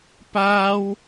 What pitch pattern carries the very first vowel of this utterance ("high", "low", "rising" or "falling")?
high